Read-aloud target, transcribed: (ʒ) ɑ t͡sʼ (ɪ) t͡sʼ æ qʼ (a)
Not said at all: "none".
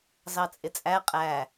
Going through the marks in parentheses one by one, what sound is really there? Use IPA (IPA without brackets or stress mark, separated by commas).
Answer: z, ɪ, æ